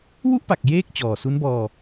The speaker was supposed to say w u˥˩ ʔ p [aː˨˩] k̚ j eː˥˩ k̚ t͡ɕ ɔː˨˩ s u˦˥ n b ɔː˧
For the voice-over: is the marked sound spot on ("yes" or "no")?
no